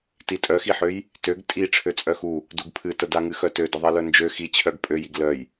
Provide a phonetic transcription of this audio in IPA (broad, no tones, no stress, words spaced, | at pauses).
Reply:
titʼœxiħøj | tøɡ tʼi ʈ͡ʂʰøt͡sʼœxu | duɡpʰɨtə daŋɨxœtø dəðˤilœnd͡ʒø xit͡ɕʰœɡ pʼøjiɡ lœj